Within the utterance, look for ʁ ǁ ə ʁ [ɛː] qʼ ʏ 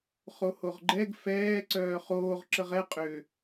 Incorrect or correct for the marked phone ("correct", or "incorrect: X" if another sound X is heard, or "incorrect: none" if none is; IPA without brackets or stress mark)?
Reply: incorrect: ɛ